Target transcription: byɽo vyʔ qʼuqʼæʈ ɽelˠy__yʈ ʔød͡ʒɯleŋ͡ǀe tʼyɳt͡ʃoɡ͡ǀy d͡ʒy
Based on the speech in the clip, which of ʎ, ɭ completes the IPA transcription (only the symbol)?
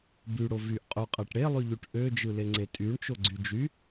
ʎ